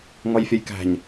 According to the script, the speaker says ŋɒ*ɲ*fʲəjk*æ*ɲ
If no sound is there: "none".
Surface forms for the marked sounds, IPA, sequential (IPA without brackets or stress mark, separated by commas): j, æ̤